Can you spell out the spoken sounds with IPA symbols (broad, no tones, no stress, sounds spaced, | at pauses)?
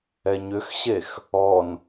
ɛ ɲ ʏ x ɕ e x | ɔ n